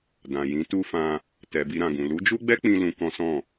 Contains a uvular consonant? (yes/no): no